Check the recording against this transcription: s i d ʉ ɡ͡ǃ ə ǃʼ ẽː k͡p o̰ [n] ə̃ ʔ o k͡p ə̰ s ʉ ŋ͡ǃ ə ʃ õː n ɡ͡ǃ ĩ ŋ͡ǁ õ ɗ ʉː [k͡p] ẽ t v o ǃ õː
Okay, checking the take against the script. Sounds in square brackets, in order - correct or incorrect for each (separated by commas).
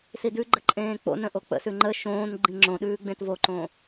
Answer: correct, incorrect